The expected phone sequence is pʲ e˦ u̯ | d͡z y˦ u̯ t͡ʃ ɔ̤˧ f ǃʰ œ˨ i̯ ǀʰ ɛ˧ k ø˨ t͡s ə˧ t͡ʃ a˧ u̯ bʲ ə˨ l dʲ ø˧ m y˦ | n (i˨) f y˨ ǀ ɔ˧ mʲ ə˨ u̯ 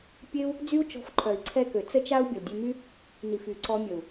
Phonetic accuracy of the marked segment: correct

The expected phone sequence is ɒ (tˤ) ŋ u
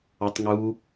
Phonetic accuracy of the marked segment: correct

